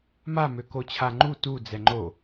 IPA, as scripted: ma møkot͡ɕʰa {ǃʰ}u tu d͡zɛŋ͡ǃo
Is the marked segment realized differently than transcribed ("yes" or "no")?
yes